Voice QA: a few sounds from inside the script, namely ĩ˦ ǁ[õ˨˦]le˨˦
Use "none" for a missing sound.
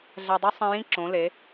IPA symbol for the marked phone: õ˨˦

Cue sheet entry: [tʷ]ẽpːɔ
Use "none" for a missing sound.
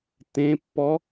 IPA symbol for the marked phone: t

